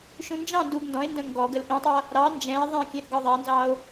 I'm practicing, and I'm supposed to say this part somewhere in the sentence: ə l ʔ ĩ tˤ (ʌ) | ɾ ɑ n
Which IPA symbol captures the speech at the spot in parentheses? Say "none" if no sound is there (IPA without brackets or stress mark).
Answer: ʌ